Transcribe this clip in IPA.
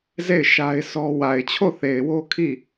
z e˦˨ ɪ̯ ʃ a˦ ɪ̯ sʰ ɔ˦ w a˨ ɪ̯ t͡ɕʰ o˦˨ θ e˨ ɪ̯ w o˦ kʰ i˦˨

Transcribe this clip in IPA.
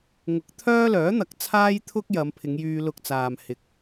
ŋ ʊ˨˥ k̚ t̪ʰ œː˥ l œː˨˥ n̪ ɐ˨ k̚ t͡sʰ aː˥ j t̪ʰ ʊ˥ k̚ j ɐ˨˧ m pʰ ɪ˨˧ ŋ j yː˧ l ʊ˧ k̚ t͡s aː˨ m h ɪ˨˥ k̚

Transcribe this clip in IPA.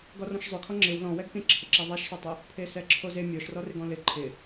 ɡ ɔ r ɔ̃ ʃ zˤ ʊ kʰ ɔ ŋ͡ǁ ɪ w l ɔ̃ w ɛ ɡ k ẽ ǁʰ ɪ ǁ ɛ ðˤ ɛ ʃ s ɔ tˤ ɪ | pʰ e s ɛ ǁʰ o z e mʲ ɔ ʃ r ɔ r ɪ ɡ ɔ̃ l ɪ ǃʰ ɪ

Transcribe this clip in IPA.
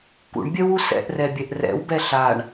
k ṵ ɳ bʲ œ w u s ɛ̰ ʔ r ɛ bʲ ɛ ʔ r ɛ̰ w b ɛ ɬ a ɳ

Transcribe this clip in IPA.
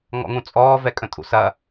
ŋ ɔ̰ ŋ ũ t͡sʼ ɔː v ɛ kʼ ə̃ tʼ ṵ s ɐ

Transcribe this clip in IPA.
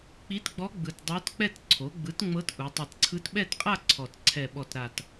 k͡p i˧˥ t ɡ͡b ɔ˧˥ ɡ͡b ɯ˨˩ t dˤ o˧˥ t k͡p ɛ˥˧ t ǀʰ o˩˥ ɡ͡b ɯ˩˥ t ŋ͡m ɤ˧˥ t ʔ u˩˧ tˤ i˨˩ t ǀʰ ɯ˧˥ t ɓ ɛ˥˧ t qʼ a˥˧ ǀʰ ɔ˨˩ t ǀʰ ɛ˨˩ ɓ ɔ˨˩ t ɾ a˨˩ t

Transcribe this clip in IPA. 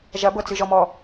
ʒ ɐ b ɤ t͡s ɨ ʒ ɔ m ɔ

